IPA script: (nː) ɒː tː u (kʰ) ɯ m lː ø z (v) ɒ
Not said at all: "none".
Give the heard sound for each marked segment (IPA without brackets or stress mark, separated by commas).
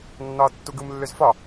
nː, ɡ, f